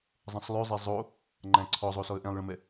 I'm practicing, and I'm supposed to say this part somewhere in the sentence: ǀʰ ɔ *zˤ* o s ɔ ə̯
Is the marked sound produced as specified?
yes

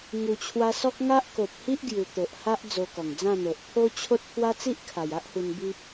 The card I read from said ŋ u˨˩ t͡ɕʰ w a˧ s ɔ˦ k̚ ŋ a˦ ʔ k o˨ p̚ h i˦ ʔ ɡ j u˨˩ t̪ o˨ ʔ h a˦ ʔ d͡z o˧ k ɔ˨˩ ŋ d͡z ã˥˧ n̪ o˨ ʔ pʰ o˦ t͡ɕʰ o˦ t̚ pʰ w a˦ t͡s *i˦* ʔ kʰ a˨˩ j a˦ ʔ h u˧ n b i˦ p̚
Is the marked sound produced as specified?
yes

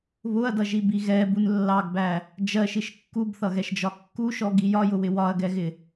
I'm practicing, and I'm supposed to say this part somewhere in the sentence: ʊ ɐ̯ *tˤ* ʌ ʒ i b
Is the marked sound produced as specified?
no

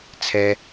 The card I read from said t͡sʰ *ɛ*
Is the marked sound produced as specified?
yes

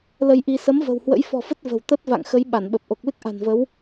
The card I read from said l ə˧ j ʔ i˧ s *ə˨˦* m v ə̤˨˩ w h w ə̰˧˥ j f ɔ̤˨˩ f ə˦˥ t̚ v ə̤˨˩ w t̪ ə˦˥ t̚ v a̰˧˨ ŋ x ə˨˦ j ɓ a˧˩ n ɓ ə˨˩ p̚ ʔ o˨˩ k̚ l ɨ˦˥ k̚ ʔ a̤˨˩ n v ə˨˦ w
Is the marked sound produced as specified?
yes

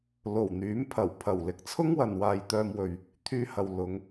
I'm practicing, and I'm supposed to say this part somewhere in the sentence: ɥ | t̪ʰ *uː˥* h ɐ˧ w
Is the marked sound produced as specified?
no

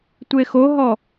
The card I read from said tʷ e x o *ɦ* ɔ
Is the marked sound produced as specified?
yes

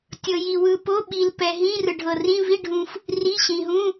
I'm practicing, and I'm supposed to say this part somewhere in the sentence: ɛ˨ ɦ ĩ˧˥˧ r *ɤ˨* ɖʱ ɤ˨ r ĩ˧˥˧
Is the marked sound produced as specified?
no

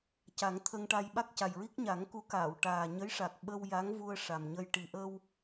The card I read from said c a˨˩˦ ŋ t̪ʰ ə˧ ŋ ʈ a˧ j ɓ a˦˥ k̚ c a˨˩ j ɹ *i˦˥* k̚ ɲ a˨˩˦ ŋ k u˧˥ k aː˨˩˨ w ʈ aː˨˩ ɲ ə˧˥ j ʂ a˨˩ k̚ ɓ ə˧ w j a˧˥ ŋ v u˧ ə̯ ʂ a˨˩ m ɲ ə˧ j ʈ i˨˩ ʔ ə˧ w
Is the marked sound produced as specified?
yes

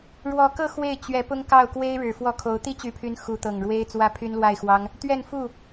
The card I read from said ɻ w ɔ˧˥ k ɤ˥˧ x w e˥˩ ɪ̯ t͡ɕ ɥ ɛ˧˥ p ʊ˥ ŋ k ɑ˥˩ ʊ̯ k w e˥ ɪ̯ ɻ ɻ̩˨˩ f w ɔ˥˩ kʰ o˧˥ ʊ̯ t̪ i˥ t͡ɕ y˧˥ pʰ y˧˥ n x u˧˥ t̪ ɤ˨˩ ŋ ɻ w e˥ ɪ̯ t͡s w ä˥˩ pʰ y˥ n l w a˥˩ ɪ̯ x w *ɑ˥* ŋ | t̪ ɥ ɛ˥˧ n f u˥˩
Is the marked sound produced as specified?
yes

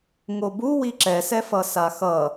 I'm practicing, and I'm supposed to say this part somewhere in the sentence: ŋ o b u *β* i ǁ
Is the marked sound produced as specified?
no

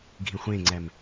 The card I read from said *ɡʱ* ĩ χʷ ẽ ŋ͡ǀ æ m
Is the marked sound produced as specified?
yes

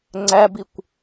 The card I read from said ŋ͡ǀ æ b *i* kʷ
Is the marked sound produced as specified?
yes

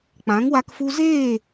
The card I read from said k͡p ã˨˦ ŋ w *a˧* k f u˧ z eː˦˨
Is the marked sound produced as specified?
yes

